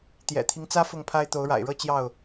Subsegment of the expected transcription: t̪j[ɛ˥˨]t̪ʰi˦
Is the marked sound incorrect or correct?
incorrect